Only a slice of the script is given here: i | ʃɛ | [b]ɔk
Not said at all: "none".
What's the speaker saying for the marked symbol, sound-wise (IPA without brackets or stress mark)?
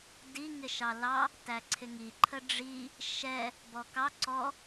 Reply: b